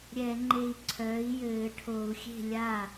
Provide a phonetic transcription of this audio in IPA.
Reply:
ɾʲɛ˧˩˧ŋ͡ǃe˧˩i̯ǀʰœː˩˥i̯ jɘː˧˩˧ʈʰo˧˩˧u̯ xʲe̤˥˩ lʲa˥˩

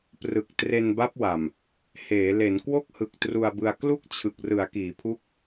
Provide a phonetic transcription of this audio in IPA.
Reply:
prɯ˨˩k̚tre˧nba˦˥p̚wa˨˩m | heː˩˦ le˩˦nkwo˥˩k̚hɯ˨˩k̚ tru˧a̯bɯ˧a̯ klu˥˩k̚ t͡ɕʰɯ˨˩k̚rɯ˩˦a̯ kiː˩˦pʰu˦˥k̚

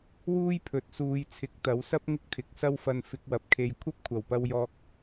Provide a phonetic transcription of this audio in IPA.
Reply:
wuː˥jpʰɵ˨˥t̚suː˨˧jt͡sʰɪ˨˥k̚ t̪ɐ˨˥wsɐ˥p̚ ŋɪ˥k̚t̪ʰɪ˨˥k̚sɐ˥wfɐ˧n fɪ˧k̚wɐ˨p̚kʰe˧j kʷʰɐ˥p̚kʷʰɐ˨˩wpɐ˧wjɔː˧k̚

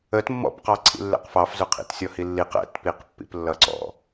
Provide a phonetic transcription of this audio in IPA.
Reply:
ət mːɔ̰pqɑ ǀʰḭlːɛ̰qfɑfzʊ qʰḭtsʲɔhilːiq ɛ̰tpiqpːḭp lːʌǀɔ̰

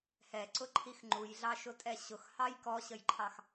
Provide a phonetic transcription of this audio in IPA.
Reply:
hɛǀʊǃʰix ŋ͡ǃujɮɑʃʊtʼɛ ɕʊxhɑj kɔɕəjǃʰɑx

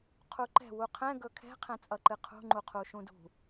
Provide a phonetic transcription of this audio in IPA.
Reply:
qʰuǃɛ̤ wuqʰɛ̃ ɡɵkʰɛ̤ qʰɛ̃t͡sʼʌǃɨqʰṳ ŋ͡ǃuqʰuʃũdṳ

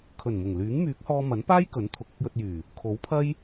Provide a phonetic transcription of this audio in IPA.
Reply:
kʰɵ˨˩nmʊ˨˩ŋ lyː˨˥ŋ myː˨˥k̚hɔː˧ mɐ˨˥npaː˥j kɵ˨˥nt̪ʰʊ˨˥k̚ ʊ˧k̚jɵ˧t̚jyː˨˩ | kʰo˨˥wpʰɐ˥j

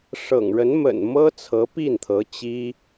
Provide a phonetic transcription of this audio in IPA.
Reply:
ʂɤ̰˨˩ŋɻə˧˥n mə̰˨˩n mɤ˥t͡sʰɤ˧˥pi˥˩nt̪ʰɤ˧˥ t͡ɕi˥

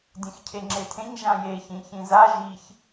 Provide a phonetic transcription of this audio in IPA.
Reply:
dʲẽxcʰeŋ͡ǁetʰẽɲ ʒãje çĩçĩza ʒiç

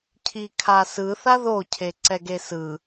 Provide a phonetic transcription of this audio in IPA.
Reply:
cʰikʰasɯ θaðo cʰeǀɛɡesɯ

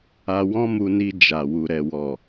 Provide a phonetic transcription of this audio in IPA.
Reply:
a˧ wɔ̃˦mu˧ni˧ d͡ʒa˨ wu˨ɾɛ˨wɔ˨

